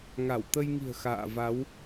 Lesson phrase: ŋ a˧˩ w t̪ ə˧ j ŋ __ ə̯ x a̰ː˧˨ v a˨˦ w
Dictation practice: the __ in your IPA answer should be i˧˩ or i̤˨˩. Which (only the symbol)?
i̤˨˩